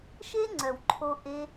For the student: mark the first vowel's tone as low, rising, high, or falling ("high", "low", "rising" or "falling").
high